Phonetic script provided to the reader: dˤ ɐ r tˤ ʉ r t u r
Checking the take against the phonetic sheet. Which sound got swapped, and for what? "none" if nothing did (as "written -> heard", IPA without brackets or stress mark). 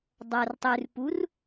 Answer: t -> p